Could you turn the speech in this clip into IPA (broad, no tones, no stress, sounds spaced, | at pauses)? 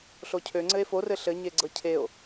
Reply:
ɬ o cʰ ø ŋ͡ǀ ɘ e̯ f o r ɘ ɬ ɘ ɲ e ɡ͡ǀ ɤ cʰ e o̯